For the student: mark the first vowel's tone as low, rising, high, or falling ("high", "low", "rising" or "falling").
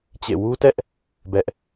falling